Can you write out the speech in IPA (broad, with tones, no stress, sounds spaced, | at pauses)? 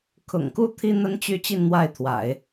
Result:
kʰ ʊ̰˨˩ ŋ k u˥˩ t̪ʰ i˥ n̪ ə˥ n t͡ɕ y˥˧ t͡ɕ i˥˧ n n̪ w a˥˩ ɪ̯ t̪ʰ w a̰˨˩˦ ɪ̯